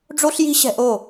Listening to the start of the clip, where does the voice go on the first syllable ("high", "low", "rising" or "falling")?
high